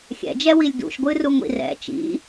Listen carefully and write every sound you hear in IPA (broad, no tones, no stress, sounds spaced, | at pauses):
xʲ ɛ̰ d͡ʒ ɛ w i lʲ d ṵ ʃ ɡʷ ɨ r u ŋʷ ḭ r ɛ̰ t͡ʃ ḭ